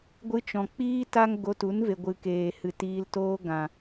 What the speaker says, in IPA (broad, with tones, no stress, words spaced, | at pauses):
ɡʷɨ˧t͡ʃɔ̃˨ k͡piː˦ta˦ŋ ɡo˧tu˨˦n ve˨ɡʷɨ˨keː˨hɨ˨ tiː˧ltoː˦ ɡã˨